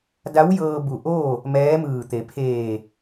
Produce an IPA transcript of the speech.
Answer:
d a˧˥ w j ɤː˧ b u˧˩ ʔ oː˥˨ | m ɛː˧˥ m ɯː˧˩ t̪ e˩˧ pʰ eː˧˩

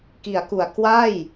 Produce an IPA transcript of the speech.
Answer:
k i˩˦ a̯ k u˨˩ a̯ k w a˥˩ j

